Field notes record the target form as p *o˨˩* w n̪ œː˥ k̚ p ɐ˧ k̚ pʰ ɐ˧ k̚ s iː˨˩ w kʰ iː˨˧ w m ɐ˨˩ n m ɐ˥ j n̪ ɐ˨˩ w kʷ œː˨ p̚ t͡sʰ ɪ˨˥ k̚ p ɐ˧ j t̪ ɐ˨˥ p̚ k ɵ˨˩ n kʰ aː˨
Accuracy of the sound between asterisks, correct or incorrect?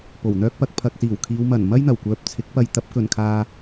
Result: correct